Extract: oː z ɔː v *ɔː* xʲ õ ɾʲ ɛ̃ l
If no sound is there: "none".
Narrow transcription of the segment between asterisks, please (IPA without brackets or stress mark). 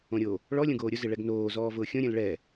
ʊː